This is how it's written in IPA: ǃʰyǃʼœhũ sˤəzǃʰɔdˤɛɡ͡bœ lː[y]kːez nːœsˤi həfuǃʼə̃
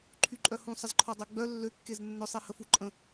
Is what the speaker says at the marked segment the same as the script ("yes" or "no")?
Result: no